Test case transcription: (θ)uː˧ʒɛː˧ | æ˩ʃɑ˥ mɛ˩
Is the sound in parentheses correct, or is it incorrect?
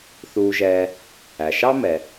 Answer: correct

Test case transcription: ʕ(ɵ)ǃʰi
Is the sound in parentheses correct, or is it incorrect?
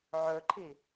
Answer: correct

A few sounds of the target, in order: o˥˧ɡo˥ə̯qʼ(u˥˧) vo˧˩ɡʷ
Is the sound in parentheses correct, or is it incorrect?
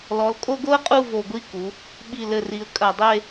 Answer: correct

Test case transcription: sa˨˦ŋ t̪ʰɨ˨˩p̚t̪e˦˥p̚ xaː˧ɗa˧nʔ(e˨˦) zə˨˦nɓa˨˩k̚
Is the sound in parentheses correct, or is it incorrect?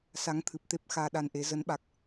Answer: correct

